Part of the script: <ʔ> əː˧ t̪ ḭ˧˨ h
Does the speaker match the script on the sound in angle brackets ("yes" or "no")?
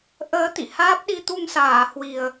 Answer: yes